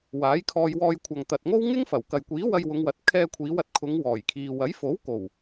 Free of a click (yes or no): yes